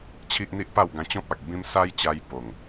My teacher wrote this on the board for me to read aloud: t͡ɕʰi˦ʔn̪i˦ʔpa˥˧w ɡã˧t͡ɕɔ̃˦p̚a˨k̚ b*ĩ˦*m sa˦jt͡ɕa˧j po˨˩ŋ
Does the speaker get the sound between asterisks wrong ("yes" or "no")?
no